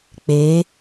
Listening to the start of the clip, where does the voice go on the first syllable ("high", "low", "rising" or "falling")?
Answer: rising